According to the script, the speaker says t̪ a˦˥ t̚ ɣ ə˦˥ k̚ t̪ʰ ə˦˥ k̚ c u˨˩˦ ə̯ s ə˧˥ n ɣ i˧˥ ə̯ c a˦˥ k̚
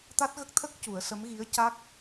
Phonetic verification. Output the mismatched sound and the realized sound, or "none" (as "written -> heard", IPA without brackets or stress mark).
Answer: n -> m